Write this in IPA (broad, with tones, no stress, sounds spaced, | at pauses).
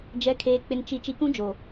d͡ʒ ɛ˨ kʰ eː˨ k͡p ɪ˨ n t͡ʃ i˨ t͡ʃ i˨ k ũ˦ d͡ʒ o˨